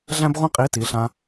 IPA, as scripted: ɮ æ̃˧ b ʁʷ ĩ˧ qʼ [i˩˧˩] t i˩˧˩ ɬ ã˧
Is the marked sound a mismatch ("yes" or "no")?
no